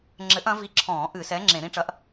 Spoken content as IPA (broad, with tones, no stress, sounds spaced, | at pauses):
ŋ͡ǁ ɘ˨˥ ʔ ɐ̃˨˥ v i˨˥ ǁʰ ɔ̃ː˧˩˧ ʔ ɨ˧˩˧ s ɛ˨˥ ŋ͡ǁ ẽ˧˩˧ ɾ ĩ˨˥ ʈ͡ʂ ɐ˨˥ ʔ